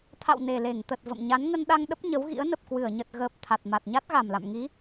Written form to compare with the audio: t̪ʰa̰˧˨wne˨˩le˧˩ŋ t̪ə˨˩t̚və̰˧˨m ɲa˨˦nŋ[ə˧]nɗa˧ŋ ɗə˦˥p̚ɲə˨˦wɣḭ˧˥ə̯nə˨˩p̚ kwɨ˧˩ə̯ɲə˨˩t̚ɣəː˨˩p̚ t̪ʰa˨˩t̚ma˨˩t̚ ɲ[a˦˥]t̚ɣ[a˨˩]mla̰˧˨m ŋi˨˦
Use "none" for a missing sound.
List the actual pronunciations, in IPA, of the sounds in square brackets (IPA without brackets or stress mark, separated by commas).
ə˧, a˦˥, a˨˩